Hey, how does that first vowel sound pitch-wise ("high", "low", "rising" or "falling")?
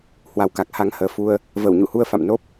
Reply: rising